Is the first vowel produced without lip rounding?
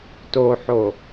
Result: no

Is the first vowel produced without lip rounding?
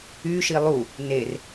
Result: no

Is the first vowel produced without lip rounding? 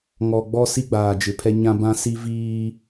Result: no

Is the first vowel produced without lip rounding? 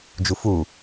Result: no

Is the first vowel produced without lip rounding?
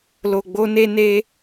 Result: no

